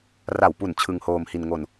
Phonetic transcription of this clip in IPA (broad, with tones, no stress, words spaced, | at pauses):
ra˨˩wpu˨˩n t͡ɕʰɯ˧ŋhoː˧mhi˧n ŋo˧n